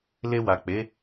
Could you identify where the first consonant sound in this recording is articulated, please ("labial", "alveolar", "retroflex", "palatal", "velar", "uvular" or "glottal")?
alveolar